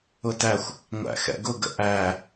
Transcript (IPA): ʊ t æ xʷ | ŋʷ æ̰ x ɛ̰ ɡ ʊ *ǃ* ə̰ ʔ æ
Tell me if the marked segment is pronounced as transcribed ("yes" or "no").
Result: no